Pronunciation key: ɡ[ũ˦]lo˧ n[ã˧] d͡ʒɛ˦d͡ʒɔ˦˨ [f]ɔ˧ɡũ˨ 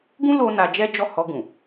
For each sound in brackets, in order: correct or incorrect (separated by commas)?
correct, incorrect, incorrect